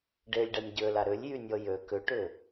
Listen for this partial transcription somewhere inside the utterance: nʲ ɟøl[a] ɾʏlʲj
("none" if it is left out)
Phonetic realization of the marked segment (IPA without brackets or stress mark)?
a